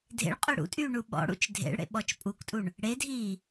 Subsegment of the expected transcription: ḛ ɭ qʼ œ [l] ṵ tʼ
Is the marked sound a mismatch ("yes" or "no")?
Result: yes